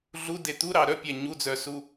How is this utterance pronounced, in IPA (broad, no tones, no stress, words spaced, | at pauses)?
ɮude t̪uɾɑ ɾœpʲæ ɲud͡zœsu